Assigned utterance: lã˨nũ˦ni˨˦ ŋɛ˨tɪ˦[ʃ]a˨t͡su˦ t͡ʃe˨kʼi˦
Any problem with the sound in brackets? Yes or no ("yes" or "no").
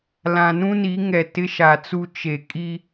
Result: no